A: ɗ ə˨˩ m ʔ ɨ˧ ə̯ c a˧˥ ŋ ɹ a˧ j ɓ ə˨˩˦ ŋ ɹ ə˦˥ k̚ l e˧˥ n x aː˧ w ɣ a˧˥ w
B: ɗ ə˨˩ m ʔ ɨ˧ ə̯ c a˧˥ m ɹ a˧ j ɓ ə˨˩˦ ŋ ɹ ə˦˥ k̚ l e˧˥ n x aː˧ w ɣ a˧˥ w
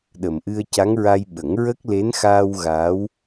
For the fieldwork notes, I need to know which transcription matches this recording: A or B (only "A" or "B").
A